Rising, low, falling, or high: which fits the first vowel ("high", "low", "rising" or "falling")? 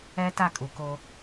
high